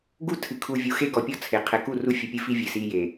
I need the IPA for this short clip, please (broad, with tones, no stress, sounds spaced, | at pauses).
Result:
ɡ u˦ tʰ ɨ˨ kʰ u˨ vʲ u˨ x e˦ ɡ ɔ˨ pʲ ɔ˦˨ t͡sʰ e˨ qʰ ɛ˨ k u˦˨ r u˦ fʲ ɨ˨ pʲ ɨ˦ f i˦ vʲ ɨ˨ s i˦ j e˨